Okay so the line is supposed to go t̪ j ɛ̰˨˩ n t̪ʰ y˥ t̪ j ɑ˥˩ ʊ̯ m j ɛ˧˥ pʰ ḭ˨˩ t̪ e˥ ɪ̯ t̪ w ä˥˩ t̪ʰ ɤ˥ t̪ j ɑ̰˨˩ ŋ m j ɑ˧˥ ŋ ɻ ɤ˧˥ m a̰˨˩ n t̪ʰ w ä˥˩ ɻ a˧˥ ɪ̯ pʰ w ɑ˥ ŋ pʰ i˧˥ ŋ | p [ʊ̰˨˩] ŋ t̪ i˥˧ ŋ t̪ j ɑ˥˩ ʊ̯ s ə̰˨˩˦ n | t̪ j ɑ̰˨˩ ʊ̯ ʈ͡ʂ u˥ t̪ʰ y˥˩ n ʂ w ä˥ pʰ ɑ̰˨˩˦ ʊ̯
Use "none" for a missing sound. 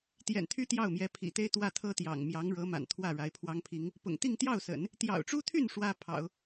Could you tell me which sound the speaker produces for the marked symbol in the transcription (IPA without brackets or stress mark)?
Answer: ʊ̰˨˩